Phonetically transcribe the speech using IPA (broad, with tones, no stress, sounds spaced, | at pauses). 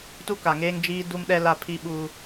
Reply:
t u˦ k a˨ ŋ eː˦ ŋ d͡ʒ iː˦ d u˦ m ɗ ɛ˦ l a˦ pʰ i˦ ɓ u˦